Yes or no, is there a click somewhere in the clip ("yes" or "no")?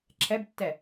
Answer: yes